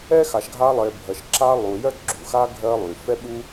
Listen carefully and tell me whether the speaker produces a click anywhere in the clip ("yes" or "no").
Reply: yes